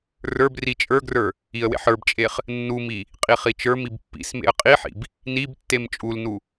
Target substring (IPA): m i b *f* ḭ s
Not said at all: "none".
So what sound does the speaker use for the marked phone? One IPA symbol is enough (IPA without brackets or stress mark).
pː